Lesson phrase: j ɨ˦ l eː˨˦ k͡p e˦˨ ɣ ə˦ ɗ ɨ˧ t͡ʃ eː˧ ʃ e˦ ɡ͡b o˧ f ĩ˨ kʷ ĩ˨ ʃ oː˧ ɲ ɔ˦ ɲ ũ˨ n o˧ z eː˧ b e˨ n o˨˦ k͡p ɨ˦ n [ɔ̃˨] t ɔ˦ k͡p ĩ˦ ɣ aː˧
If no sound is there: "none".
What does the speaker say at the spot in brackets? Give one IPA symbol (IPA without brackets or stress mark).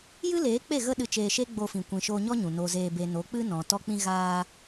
ɔ̃˨